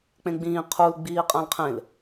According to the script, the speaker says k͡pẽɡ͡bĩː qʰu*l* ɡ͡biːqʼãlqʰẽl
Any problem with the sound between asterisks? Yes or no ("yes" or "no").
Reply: no